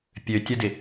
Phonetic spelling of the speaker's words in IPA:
pʲ ø tʲ ə d ɪ

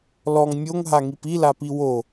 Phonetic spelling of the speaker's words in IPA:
l ɔ ŋ mʲ o ŋ ɦ a ŋ i p i l a p i w o

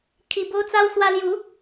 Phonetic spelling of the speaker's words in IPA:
kʰ i˧ b o˦ t͡s a˦ w s w a˦ l j u˨˦

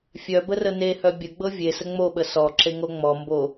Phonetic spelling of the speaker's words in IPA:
fʲ œ b ə r ə n e h œ bʲ ə ɡ͡b ɤ vʲ e s ə ŋ͡m o ɓ ə s ɔ ǁ e ŋ o ŋ͡m ɔ m b o

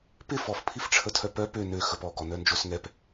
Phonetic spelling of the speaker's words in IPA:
p ɪ f ɔ f pʰ i f ʈ͡ʂʰ ə tʰ œ p œ p ø n ø x ə p ɔ ɡ ɔ n œ n d͡ʒ o s ŋ ɛ p

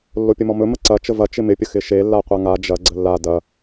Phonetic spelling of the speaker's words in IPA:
lː o pʲ ə m ɔ m ɵ m ə ǀ ɐ t͡ʃ ə v ɐ t͡ʃ ɪ m ɪ pʲ ə x ɪ ʃ e lː a qʷ a ŋ a d͡ʒ ɐ ɡ͡ǀ ə lː a d ɐ

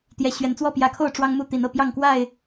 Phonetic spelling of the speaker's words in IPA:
t̪ j ɛ˨˦ ɕ ɥ ɛ˨˦ n t͡s w ɔ˥˨ p j ä˨˦ kʰ o˥˨ ʊ̯ ʈ͡ʂ w ɑ˦ ŋ m u˥˨ t̪ i˨˦ n ɤ˥˨ p j ɑ˥˨ ŋ k w a˥˨ ɪ̯

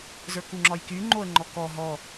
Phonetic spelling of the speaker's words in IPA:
z ə˞ k u ŋ͡ǁ ɒ j k y ŋ͡ǃ o ə̯ ŋ͡ǃ ɔ k ɔ ɦ ɔ

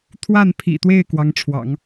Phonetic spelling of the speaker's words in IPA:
t̪ʰ w a˥˩ n pʰ ḭ˨˩ t̪ w e˥˩ ɪ̯ k w ɑ˧˥ ŋ ʈ͡ʂʰ w ɑ̰˨˩˦ ŋ

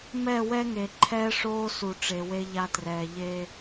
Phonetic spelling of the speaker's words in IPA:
m ɛ˦˨ w ɛ˦ ŋ e˨ ǃʰ ɛː˦ ʂ oː˦ s u˨ ʈ͡ʂ e˨ w e˦ ʎ a˦ t r ɛː˨ ʎ e˦

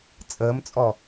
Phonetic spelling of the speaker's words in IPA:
t͡sʼ əː m t͡sʼ ɔ

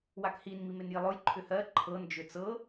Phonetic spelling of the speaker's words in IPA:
w a k h i n m i m e n j i lˠ ʊ j ǃʰ ʏ h ɜ ǃʰ ɤ n d͡ʒ ʏ t͡s ɤ

